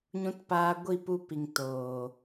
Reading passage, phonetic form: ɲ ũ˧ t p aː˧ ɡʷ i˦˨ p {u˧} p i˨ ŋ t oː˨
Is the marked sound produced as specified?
yes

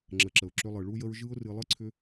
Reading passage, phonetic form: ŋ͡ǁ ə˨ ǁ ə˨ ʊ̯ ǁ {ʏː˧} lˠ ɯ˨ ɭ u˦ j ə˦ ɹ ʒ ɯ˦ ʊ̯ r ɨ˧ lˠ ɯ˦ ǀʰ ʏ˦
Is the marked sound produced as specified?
no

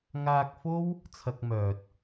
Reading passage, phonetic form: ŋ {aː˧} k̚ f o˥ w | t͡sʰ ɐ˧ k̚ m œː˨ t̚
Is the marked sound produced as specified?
yes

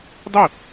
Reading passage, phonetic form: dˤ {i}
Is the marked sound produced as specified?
yes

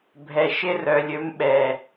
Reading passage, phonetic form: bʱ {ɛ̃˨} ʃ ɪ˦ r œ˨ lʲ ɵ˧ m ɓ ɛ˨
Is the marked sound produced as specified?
no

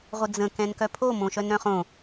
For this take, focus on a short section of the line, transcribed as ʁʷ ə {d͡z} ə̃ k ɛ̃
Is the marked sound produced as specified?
yes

